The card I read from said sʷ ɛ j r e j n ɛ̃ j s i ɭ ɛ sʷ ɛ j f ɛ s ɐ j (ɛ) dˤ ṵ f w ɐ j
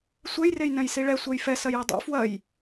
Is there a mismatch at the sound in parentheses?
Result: no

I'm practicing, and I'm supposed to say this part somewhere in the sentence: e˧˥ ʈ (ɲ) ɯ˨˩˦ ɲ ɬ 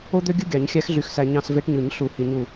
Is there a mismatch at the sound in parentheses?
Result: no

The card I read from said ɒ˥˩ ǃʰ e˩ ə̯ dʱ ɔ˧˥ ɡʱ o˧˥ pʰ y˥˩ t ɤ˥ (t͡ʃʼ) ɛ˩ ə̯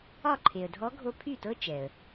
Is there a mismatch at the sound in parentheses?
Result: yes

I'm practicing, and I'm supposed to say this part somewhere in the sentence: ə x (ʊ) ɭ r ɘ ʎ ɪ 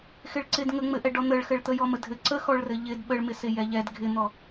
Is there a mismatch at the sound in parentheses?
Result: yes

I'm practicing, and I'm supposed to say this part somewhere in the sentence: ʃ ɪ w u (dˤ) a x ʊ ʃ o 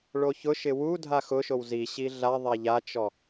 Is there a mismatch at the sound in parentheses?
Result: yes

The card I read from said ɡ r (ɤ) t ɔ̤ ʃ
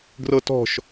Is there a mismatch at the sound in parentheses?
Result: no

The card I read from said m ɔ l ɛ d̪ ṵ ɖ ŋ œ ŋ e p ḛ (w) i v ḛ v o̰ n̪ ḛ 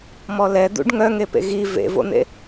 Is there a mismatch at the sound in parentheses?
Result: yes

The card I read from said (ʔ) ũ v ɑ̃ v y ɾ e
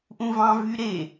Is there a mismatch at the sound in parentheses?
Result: no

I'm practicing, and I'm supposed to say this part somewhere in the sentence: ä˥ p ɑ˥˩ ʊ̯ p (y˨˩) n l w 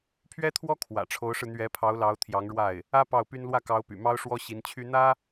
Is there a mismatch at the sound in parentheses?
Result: yes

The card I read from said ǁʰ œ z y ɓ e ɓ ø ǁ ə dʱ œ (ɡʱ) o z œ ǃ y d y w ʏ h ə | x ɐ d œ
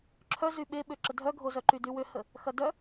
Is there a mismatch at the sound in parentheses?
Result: no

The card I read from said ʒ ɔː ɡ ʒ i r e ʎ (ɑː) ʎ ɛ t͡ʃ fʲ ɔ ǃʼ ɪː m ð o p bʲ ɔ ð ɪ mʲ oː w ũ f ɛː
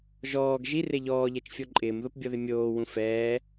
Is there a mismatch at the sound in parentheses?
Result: yes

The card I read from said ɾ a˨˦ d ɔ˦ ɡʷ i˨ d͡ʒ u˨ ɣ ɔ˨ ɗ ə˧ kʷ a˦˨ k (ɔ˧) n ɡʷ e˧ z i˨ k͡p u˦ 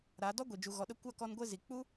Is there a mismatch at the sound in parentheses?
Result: no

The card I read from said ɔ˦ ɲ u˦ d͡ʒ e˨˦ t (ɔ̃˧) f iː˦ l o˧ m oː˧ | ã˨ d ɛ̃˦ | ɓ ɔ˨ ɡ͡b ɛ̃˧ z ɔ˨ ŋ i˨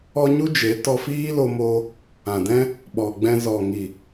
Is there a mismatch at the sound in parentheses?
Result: yes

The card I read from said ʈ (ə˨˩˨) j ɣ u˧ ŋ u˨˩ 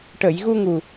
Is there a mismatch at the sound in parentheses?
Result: no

